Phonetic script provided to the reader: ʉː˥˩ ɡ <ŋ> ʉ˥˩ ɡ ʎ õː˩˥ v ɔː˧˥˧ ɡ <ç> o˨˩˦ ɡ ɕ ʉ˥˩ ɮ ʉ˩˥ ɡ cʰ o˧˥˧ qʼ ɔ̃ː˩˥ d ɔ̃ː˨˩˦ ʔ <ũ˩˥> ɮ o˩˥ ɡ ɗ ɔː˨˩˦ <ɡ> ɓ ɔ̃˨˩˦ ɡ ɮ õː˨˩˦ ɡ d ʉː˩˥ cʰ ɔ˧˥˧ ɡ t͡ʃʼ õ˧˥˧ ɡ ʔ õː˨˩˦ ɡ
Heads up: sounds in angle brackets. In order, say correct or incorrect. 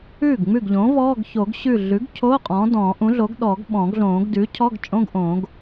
incorrect, correct, correct, correct

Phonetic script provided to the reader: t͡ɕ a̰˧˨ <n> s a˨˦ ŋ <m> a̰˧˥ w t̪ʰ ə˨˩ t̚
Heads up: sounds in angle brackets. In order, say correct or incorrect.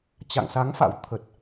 incorrect, incorrect

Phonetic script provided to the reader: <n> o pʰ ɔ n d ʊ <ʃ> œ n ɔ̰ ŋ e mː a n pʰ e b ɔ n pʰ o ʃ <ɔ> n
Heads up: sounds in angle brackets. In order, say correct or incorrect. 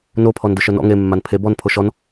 correct, correct, correct

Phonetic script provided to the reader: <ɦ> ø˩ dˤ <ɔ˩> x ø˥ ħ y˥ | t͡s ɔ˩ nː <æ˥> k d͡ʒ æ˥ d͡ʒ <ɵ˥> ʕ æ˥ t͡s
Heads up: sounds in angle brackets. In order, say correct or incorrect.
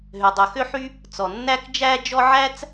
correct, incorrect, correct, incorrect

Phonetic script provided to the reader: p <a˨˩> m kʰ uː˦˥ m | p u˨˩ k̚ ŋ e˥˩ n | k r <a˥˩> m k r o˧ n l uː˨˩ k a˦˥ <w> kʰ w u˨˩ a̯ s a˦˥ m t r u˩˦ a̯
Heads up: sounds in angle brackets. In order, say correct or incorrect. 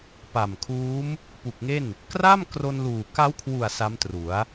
correct, correct, correct

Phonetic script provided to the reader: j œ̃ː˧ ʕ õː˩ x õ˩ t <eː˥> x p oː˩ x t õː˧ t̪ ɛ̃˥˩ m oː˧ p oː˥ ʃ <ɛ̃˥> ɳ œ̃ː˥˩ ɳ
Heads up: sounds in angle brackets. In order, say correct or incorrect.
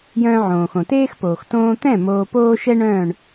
correct, incorrect

